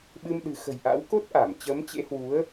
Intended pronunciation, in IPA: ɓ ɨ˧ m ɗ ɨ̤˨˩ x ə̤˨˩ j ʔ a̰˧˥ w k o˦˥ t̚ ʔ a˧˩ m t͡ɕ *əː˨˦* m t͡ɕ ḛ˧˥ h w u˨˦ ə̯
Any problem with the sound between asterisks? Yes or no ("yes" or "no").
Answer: no